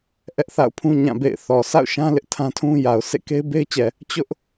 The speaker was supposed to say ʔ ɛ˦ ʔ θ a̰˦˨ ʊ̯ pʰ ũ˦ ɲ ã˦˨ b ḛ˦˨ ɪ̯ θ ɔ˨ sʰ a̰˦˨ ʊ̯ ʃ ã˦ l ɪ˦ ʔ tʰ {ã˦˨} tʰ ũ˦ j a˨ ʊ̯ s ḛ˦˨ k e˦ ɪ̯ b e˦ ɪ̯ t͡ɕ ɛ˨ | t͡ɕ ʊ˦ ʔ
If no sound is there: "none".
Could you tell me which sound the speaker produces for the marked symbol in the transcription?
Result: ã˦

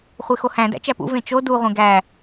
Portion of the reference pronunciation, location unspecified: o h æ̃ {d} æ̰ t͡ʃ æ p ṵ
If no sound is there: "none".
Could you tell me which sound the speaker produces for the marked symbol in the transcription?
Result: d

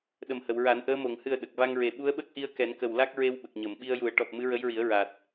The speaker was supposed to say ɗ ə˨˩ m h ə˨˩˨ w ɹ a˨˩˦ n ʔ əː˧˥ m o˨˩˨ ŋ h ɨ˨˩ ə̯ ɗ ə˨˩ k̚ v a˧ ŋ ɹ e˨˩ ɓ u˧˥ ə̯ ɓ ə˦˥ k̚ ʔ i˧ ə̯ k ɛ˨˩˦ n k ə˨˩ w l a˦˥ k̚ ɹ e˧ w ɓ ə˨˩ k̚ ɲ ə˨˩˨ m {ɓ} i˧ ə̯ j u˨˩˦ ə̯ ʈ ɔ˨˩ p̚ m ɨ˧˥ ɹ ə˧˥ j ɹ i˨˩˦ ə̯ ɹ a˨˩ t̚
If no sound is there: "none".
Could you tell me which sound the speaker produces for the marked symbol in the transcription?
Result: ɓ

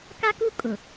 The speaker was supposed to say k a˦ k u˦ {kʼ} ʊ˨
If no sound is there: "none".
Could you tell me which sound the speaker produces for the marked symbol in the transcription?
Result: kʼ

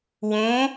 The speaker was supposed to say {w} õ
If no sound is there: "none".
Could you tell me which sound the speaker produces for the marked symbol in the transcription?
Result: w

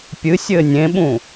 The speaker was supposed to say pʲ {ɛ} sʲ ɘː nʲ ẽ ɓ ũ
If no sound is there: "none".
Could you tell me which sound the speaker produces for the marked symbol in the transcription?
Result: ɨ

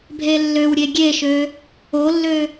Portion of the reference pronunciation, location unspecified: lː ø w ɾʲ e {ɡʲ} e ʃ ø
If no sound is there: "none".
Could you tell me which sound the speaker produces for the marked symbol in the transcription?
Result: ɡʲ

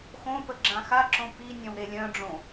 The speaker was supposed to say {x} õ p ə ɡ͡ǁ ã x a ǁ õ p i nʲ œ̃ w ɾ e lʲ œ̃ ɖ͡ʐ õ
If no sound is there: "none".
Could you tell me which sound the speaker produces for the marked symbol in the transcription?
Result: x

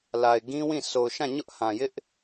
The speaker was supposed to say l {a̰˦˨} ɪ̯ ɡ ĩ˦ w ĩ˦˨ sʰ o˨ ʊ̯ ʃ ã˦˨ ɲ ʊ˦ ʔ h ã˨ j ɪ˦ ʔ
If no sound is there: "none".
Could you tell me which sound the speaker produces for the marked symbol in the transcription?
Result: a˨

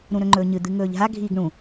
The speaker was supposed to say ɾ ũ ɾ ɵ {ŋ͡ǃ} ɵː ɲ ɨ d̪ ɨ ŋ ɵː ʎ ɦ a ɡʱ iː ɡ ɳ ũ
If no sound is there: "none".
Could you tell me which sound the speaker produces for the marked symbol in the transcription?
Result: ŋ͡ǃ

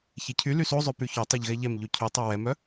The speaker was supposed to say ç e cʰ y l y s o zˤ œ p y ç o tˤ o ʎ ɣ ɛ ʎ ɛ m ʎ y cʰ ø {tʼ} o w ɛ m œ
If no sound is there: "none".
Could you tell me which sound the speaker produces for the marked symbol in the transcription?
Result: tˤ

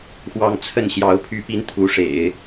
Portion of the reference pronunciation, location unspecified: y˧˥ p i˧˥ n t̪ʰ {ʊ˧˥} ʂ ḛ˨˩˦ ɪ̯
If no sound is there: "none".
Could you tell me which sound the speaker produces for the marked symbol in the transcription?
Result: u˧˥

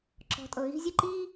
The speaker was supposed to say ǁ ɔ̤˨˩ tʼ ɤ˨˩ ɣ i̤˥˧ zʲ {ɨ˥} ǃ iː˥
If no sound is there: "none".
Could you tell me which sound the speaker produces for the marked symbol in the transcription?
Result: ɨ˥˩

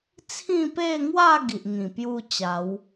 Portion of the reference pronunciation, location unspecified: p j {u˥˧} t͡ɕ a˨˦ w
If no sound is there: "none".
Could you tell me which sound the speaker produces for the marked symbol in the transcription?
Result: u˥˧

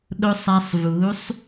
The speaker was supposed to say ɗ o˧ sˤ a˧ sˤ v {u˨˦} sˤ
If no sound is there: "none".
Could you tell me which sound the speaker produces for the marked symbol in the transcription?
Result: u˨˦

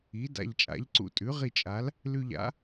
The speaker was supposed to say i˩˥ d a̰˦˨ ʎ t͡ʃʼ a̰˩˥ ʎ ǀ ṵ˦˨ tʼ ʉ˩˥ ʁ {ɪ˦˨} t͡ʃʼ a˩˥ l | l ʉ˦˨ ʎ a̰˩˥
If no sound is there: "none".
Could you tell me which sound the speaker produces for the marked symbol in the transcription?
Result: i˦˨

